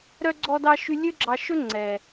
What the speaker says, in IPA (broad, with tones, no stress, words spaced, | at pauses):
ɾœ˧ɡ͡ǀɔ˧dɑ˧ ʃy˧ lʲø˦ɡ͡ǁɑ˧ʃɵ˦ ŋ͡ǀɛ˨